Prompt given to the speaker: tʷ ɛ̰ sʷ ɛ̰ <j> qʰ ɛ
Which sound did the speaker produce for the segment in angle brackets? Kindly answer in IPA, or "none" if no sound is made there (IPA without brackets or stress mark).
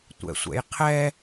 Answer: j